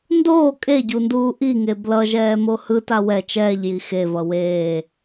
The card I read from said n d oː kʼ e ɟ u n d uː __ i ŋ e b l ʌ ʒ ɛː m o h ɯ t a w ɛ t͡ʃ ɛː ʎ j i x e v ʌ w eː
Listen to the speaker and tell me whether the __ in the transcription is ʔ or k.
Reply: ʔ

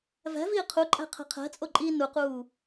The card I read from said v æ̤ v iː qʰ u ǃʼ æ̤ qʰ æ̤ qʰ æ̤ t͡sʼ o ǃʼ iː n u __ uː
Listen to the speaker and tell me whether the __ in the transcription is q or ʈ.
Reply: q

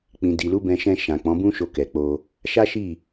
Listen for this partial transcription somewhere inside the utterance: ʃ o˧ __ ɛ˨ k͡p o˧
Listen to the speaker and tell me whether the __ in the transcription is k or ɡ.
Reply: k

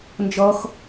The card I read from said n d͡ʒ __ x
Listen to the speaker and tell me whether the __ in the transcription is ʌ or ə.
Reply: ʌ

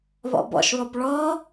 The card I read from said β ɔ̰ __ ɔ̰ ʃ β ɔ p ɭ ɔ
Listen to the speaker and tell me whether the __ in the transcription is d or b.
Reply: b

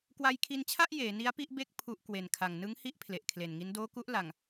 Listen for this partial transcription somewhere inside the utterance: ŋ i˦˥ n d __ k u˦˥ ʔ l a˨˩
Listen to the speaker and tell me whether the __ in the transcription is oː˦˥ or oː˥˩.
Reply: oː˦˥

